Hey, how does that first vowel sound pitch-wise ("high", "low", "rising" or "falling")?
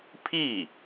falling